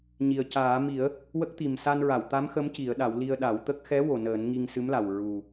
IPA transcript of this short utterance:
ɲ i˨˩ ə̯ c aː˨˩˦ m i˨˩˦ ə̯ | w ə˦˥ k̚ t̪ i˨˩ m s a˧ n ɹ a˨˩˨ w t̪ a˧˥ m x ə˧˥ m c i˨˩˦ ə̯ ɗ a˨˩˦ w l i˧ ə̯ ɗ a˨˩˦ w t̪ ə˦˥ k̚ x ɛ˧˥ w o˨˩ n əː˨˩˦ n ŋ i˧ ŋ s ɨ˧˥ m l a˨˩ w ɹ u˨˩

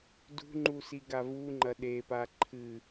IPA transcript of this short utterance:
d ṳ ŋ͡ǃ u s i ɡ a v u ŋ͡ǃ ɐ ɗ e p a ǃʰ ɨ

